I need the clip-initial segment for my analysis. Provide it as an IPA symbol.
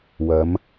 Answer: w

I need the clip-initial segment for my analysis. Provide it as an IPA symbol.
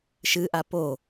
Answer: ʃ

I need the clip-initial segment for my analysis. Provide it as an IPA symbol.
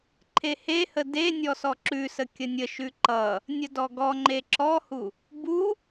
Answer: ǃʰ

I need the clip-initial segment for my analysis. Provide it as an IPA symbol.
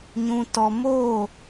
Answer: ɲ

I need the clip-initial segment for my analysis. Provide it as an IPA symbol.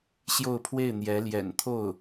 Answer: ɕ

